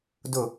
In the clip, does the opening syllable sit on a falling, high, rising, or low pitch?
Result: falling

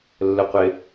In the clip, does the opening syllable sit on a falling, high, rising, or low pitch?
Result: low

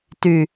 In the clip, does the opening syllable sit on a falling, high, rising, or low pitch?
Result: low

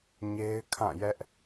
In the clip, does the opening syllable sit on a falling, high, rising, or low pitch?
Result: high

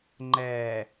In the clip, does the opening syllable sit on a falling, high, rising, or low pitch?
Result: low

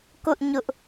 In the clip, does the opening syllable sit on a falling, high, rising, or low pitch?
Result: high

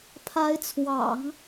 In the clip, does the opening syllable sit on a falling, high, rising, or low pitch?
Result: rising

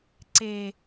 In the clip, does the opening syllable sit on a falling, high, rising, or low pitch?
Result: low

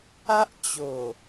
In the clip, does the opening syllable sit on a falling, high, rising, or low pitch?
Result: high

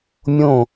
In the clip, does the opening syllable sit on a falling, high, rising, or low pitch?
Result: falling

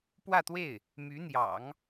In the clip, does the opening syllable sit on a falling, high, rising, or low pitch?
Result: falling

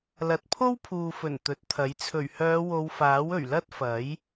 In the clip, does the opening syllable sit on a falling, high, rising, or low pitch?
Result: low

